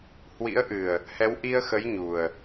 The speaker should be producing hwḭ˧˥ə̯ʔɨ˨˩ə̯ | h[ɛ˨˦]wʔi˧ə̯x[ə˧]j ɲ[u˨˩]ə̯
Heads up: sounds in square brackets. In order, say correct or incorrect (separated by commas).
correct, incorrect, correct